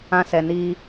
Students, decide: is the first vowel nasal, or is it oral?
nasal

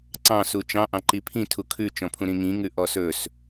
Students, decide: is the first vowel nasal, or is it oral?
nasal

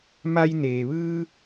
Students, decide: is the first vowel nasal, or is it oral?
oral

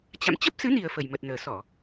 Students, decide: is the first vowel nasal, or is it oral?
oral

